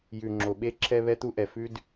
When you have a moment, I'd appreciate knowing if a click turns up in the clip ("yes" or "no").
yes